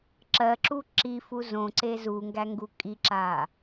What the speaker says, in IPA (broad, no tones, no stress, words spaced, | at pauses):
ǁɜǁu ǁifu zõǀe zuŋɡæŋɡu kʼiǁa